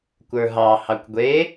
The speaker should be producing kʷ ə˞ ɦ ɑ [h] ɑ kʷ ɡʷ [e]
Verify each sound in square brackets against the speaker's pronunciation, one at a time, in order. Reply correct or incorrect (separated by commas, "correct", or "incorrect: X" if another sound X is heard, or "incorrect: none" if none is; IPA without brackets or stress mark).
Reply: correct, correct